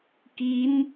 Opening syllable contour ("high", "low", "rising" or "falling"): rising